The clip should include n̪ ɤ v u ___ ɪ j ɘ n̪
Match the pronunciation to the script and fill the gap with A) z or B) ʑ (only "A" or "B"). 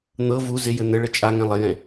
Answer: A